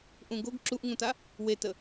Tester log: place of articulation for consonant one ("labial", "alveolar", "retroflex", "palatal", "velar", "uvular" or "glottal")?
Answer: glottal